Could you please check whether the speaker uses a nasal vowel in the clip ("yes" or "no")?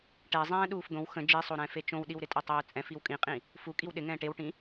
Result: yes